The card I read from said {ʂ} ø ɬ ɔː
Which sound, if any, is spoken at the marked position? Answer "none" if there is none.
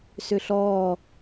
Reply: s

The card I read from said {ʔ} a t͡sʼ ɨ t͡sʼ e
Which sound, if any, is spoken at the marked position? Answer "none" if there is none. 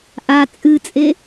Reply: ʔ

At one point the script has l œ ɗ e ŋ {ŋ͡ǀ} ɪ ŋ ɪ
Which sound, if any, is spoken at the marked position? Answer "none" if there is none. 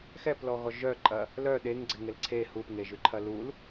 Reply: ɡ͡ǀ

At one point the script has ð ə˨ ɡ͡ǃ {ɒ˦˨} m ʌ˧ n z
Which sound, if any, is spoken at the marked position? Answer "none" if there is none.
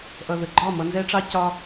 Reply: ɒ˦˨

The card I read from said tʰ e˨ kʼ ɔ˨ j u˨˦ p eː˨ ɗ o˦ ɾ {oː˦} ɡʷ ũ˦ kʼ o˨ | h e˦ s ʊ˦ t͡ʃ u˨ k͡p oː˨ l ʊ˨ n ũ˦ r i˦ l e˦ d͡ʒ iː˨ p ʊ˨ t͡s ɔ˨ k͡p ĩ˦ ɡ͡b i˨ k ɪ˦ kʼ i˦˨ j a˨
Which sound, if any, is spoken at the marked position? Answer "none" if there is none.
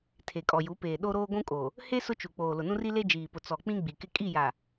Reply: oː˦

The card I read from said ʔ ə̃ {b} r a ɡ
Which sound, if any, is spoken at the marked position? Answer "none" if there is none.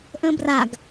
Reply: b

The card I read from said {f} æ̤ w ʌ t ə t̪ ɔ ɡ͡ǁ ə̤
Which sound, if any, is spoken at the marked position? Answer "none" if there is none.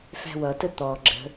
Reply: f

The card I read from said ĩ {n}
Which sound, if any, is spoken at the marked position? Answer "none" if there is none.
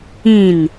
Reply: n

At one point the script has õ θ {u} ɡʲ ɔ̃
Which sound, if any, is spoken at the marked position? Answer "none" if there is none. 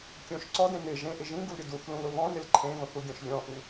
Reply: u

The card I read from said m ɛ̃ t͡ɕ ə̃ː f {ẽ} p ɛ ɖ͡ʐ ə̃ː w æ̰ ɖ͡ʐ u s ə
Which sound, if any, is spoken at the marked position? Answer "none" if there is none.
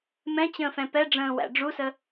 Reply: ɛ̃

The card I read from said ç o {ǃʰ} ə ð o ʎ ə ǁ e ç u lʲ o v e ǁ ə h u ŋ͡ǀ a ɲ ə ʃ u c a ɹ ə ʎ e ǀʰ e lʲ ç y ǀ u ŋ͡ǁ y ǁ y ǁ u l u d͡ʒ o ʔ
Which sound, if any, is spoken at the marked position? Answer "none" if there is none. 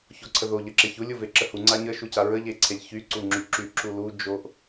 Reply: ǀʰ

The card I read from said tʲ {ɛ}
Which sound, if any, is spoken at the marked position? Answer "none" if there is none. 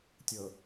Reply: ə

